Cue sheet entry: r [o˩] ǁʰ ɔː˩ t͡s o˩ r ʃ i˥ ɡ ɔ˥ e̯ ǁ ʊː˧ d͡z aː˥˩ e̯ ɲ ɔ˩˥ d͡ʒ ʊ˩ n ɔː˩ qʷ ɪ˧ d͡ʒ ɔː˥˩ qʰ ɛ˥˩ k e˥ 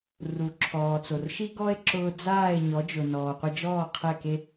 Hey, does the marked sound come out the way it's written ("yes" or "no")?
no